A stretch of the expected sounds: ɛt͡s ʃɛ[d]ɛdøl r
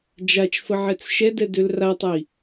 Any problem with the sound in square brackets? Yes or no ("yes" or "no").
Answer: no